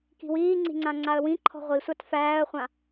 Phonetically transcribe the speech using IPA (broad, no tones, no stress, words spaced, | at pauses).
ki̤wiːŋ͡ǀi̤ŋ͡ǀã ŋ͡ǀaə̯wĩ ǃʰɔ̤ʁʷisʷat fæːə̯χʷã